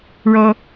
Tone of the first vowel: high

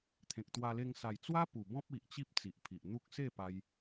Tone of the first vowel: low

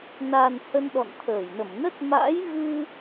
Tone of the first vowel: low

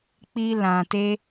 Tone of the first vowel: high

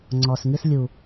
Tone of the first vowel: low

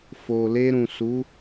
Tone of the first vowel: low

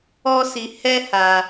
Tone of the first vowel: high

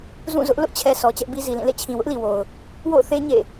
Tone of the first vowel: falling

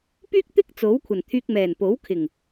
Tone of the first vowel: high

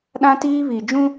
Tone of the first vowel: high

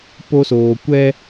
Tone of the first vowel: high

